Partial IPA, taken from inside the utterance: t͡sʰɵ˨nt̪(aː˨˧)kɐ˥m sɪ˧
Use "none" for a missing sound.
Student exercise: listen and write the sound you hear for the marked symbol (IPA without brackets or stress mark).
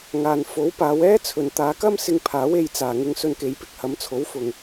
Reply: aː˨˧